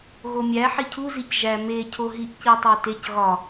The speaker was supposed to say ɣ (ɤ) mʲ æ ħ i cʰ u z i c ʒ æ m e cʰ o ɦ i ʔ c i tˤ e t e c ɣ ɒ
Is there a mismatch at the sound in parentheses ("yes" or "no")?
yes